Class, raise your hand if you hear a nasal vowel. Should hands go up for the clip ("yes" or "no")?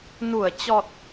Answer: no